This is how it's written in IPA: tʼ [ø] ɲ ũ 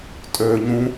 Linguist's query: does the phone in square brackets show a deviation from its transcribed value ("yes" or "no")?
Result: no